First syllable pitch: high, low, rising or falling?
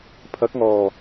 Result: rising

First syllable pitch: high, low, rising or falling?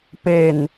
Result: low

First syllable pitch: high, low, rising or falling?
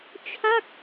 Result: falling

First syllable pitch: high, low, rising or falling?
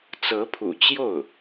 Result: rising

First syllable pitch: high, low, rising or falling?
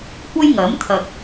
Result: high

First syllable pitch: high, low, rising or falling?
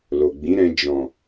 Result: low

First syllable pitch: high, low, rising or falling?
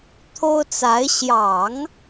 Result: high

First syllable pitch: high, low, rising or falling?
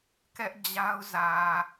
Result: high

